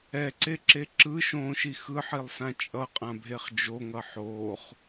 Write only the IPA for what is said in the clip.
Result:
ɛǀeǁe ǁɯːʃõːʃi xɯħilˠsã t͡ʃʼʌqʼãbʱeχ d͡ʒoŋʌ ħoːχ

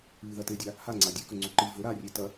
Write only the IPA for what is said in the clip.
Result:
ɨðɐtedʲa | haŋ͡ǀa dʲɨkɵŋ͡ǀu ǃɨ vɵ ɾarʲe tɐ

